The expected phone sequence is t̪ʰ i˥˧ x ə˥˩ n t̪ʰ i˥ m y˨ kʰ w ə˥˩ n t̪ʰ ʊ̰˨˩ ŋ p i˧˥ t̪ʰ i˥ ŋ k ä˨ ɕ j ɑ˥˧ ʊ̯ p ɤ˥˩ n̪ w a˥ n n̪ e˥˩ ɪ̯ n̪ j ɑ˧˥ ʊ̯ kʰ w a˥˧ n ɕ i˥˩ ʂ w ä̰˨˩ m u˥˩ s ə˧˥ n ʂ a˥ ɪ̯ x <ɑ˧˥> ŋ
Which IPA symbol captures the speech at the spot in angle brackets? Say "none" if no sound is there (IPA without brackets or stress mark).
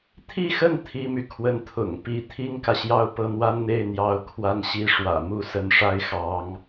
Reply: ɑ˧˥